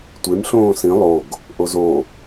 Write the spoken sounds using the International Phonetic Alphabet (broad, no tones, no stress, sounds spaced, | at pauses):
tʷ e m ɬ õː s ĩ lˠ o ɡ | ʔ o z o